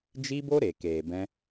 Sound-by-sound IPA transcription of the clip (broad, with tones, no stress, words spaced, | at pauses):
d͡ʒi˦bo˦ɾe˨ keː˨bɛ̃˧